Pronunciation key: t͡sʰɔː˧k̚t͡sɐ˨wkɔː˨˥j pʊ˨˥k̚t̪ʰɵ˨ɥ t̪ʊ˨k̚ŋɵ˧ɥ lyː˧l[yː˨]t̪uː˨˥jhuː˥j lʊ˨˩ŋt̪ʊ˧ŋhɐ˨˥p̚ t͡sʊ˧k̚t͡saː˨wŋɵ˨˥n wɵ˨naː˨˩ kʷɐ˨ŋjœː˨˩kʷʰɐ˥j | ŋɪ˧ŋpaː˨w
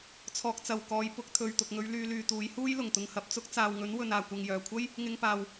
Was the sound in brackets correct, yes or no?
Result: yes